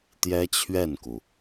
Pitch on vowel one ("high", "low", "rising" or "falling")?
high